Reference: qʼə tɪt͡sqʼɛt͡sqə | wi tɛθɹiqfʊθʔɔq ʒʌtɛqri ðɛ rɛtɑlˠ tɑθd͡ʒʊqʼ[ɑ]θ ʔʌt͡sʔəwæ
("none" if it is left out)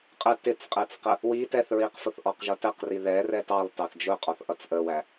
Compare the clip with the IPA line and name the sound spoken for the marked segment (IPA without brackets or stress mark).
ɔ